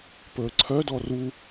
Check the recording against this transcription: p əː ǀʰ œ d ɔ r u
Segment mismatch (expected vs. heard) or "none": none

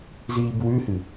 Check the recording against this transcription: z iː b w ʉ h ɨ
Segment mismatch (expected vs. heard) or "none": none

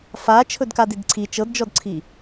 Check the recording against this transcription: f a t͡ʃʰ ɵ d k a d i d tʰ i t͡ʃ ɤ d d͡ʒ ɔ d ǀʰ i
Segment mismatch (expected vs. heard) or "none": tʰ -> ǀʰ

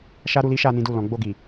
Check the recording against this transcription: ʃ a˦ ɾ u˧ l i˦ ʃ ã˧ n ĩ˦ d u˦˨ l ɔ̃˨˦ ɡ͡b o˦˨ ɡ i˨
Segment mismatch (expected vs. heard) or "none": ã˧ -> a˧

